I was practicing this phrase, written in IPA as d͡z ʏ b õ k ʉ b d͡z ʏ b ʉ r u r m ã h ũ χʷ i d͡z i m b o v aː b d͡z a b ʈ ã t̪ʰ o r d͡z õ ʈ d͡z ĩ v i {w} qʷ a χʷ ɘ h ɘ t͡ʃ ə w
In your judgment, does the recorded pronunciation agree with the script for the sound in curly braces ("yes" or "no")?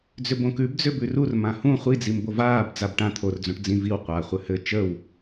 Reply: yes